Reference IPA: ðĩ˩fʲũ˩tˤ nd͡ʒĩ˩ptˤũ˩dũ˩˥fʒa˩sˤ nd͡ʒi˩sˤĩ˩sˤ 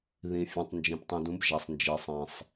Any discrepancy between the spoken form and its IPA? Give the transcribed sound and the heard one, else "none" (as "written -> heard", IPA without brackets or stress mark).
f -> b